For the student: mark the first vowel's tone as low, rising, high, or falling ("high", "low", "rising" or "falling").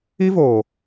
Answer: high